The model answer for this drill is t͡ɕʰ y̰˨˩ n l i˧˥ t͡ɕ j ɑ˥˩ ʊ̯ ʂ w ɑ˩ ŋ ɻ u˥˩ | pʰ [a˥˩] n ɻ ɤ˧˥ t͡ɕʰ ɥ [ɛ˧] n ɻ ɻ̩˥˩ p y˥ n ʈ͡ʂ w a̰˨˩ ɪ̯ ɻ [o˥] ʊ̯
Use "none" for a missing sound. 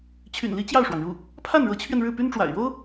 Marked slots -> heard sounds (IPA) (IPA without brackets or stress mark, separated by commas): a˥˩, ɛ˧, o˥